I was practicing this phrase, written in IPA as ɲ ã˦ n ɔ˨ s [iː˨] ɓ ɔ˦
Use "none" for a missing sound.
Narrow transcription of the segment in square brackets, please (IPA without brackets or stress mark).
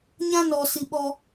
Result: i˨